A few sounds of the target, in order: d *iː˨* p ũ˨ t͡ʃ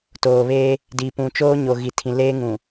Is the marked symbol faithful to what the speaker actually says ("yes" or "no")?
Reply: no